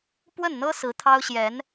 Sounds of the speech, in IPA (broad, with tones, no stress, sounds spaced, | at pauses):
p w ə˥˩ n n̪ ɤ˥ s ɹ̩˧˥ t̪ʰ ɑ˥ ʊ̯ ɕ j ɛ˧˥ n